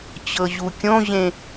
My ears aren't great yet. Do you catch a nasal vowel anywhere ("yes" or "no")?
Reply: yes